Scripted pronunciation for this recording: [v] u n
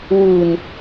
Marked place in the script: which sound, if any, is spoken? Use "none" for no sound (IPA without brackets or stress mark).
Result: w